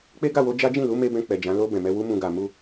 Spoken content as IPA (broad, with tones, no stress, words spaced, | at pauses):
k͡pe˦ɡa˦˨wo˧ d͡ʒa˦d͡ʒĩ˦˨lu˨˦ me˦bɛ̃˧ k͡pɛ˨d͡ʒã˨˦ lo˧ bɛ̃˨mɛ˧ wu˦ mũ˧ɡa˨ mu˧